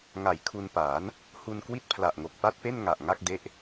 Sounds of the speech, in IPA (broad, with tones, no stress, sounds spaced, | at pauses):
ŋ a˨˩ j kʰ u˧ n p aː˩˦ n | h u˧ n k w i˥˩ t̚ pʰ l a˨˩ ʔ ŋ o˨˩ k̚ p a˥˩ t̚ p e˥˩ n ŋ a˨˩ ʔ ŋ a˥˩ k̚ d e˦˥ ʔ